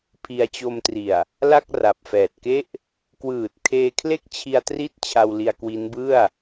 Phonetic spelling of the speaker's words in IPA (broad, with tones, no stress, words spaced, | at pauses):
pʰi˧a̯t͡ɕo˧mtri˨˩a̯ | la˥˩k̚ ra˨˩p̚fɛː˨˩t̚ke˥˩ʔ | kwɯː˨˩t̚ kʰeː˧kʰle˥˩k̚t͡ɕʰi˧a̯tri˦˥t̚ t͡ɕʰa˧wli˧a̯ kwi˦˥nbɯ˥˩a̯